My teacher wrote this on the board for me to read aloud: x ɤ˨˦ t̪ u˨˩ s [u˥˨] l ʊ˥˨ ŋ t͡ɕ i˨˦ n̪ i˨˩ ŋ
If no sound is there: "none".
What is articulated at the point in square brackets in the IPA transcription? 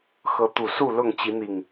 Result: u˥˨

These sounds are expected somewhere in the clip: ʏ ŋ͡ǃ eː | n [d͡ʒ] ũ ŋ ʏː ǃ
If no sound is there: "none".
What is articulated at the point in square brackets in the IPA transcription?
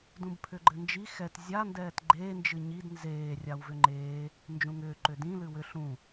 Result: d͡ʒ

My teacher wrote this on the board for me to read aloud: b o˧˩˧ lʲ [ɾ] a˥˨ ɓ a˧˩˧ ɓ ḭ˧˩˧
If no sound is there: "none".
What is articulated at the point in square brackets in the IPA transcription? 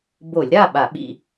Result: ɾ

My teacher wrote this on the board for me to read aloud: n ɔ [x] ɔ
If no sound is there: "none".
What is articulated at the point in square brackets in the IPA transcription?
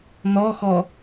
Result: x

